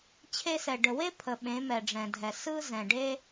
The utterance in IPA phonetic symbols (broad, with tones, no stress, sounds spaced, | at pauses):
t͡ɕʰ e˧ s ɛ˨ ɖ ə˨ w e˦ pʰ ə˨ ɓ ẽ˨˦ m ɛ˨ ɖ͡ʐ ɛ̃˨ dʱ ɛ˨ s ɯ˧ z ɛ̃˨ ɖ e˦